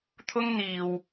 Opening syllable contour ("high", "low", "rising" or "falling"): high